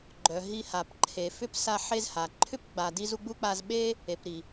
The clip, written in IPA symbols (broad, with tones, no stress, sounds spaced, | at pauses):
ɡ͡ǃ œ˨ ɦ i˦ h a˨ p ǃʰ e˨ f ʏ˥ p s a˦ ħ e˦ z h a˩ ǃʰ ʏ˥ p ɡ͡b a˨ d i˦ z u˦ ɡ͡b u˥ k͡p a˦ z ɓ e˥ | e˨ p ɾ i˩